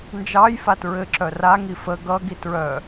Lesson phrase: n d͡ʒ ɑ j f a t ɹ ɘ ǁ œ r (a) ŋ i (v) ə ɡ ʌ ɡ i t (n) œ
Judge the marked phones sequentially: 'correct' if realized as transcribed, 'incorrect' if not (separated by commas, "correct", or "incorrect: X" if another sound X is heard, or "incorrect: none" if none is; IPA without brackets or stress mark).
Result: correct, incorrect: f, incorrect: ɹ